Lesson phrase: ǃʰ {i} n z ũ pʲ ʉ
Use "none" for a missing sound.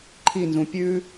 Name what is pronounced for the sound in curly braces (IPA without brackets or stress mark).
i